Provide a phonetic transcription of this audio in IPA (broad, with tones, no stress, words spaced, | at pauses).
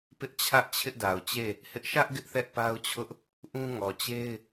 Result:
pɪ˦ʔt͡ɕʰä˦ʔ t͡ɕʰɪ˦ʔda˨ʊ̯t͡ɕe˦˨ | hɪ˦ʔ ʃä˦ʔ ɡɪ˦ʔθɛ˦ʔpa˦ʊ̯t͡ɕʰʊ˦ʔ | ʔũ˦ ŋɔ˨t͡ɕe˦ɪ̯